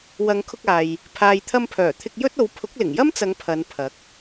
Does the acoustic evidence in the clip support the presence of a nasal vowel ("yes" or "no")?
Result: no